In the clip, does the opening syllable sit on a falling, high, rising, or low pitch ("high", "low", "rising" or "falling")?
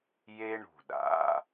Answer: high